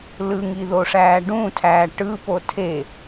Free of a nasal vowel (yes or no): no